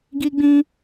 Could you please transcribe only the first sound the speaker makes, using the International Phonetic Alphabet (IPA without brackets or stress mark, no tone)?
ɡ